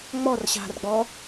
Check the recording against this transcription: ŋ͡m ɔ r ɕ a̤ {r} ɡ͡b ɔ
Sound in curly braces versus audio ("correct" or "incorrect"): correct